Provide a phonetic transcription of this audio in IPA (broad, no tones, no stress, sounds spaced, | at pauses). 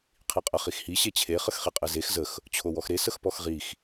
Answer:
qʰ i qʼ ə χ i x h i ɕ e t͡ɕʰ e χ ə x χ i qʼ e z e x z ə x | t͡ɕʰ o w ɔ x ɾ e s ə x p ɔ x ʁ i x